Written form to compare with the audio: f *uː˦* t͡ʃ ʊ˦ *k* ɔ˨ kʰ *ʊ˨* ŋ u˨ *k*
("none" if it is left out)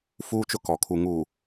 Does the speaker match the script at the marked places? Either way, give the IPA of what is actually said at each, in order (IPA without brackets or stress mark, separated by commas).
uː˦, k, u˨, none